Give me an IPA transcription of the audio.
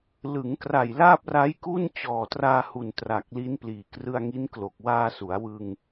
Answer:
lɯ˩˦ŋkra˨˩j laː˥˩p̚ra˦˥jku˥˩n t͡ɕɔː˨˩traː˧hu˨˩n tra˨˩k̚li˦˥n pliː˨˩krɯ˧a̯ŋi˦˥nklo˨˩k̚ waː˧ su˩˦a̯wɯ˧ŋ

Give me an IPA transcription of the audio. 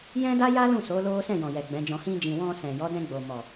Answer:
jɛ̃˦da˦ja˦ lũ˦˨so˨˦ lo˦ sɛ̃˦˨jɔ̃˨jɛ˨ ɡ͡bɛ̃˨˦d͡ʒɔ̃˧ hĩ˧d͡ʒĩ˨ wɔ̃˧ sɛ̃˨jɔ˨˦dɛ̃˧ ɡ͡bo˨mɔ˨

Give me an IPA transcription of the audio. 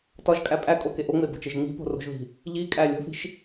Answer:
tɒʒkʼæ pʼækʼoke ʔoŋ͡mebo̤t͡ʃeʒ ŋ͡mi̤po̤ro̤ʒði̤ | ʎikʼæ lʲo̤θi̤ʃ

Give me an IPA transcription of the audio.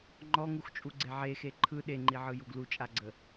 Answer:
ŋ͡ǃɔŋuxt͡ʃʼuɡ͡ǀe ʕexe ǃʰɯ ɗeŋ͡ǃiʕɯjuɡ lut͡ʃʼaɡ͡ǀə

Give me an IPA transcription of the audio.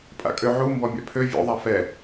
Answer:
pʼa̰kʼøʕu mbɔmʲa̰pʰø vʲo̰ðˤa fɛ

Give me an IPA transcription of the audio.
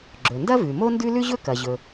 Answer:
ɡ͡ǁɵ˩ndɐ˥vʉ˩ mo˥ndʉ˥lʉ˥ʑɵ˥ kɐ˩ʑɵ˩

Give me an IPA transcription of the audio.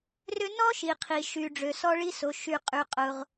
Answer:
rʏ˥ nɔ˥ʃi˩qʰi˩ʃy˩ ɖ͡ʐø˩sɔ˥ɭi˥so˩ ʃy˩qʼy˩qʼʊ˩ʁ

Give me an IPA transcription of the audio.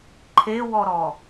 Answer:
ǃʰewɔɾɔ

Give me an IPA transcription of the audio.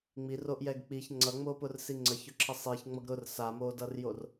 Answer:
ŋ͡miroʔjɛɡ k͡piç ŋ͡ǀʌŋ͡mopʊrsi ŋ͡ǀəçʊǁʰə sˤiçŋ͡mʌɡ ɾʊr samodʌrjor

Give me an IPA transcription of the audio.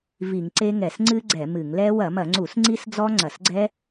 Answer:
vi˧˩˧ŋǀe˦˥ŋɛ˧˩˧s ŋ͡ǀɨ˦˥ ɡ͡ǀɛ˧˩˧mɨ˧˩˧ŋlɛ˦˥ wɐ˧˩˧mɐ˧˩˧ŋ͡ǀu˧˩˧s ŋ͡ǀi˦˥sd͡zɔ˦˥ŋ͡ǀɐ˧˩˧sɡ͡ǀɛ˦˥

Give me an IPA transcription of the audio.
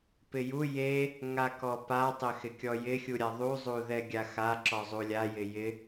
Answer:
pɪju je | ŋakɔpa tˤɪxɪkʲɔjɪ xʲuɾʲaðˤu zˤuðɛɡʲaxa ǁɔzˤulʲa jɪjɪ

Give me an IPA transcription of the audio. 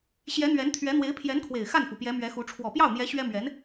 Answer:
ɕjɛ˧˥n̪ɥɛ˧˥nt̪ʰɥɛ˧˥n̪we˧˥ɪ̯ pʰjɛ˧˥nkʰwe˨˩ɪ̯ xa˥˩nfu˩ pjɛ˧˥mɥɛ˧˥xu˧˥ ʈ͡ʂʰwɔ˨˩pjɑ˥˩ʊ̯n̪jɛ˧˥ ɕɥɛ˥mɥɛ˧˥n

